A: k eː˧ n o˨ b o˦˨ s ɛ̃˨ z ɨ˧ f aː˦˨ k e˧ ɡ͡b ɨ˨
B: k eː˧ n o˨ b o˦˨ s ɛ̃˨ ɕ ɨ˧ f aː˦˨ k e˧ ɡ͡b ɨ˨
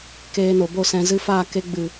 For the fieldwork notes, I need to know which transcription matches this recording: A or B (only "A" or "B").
A